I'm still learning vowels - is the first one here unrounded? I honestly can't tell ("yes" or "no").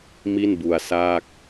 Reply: yes